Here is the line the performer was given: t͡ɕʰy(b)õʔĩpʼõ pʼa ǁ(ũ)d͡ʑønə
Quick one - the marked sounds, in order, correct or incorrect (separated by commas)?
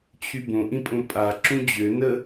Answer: correct, correct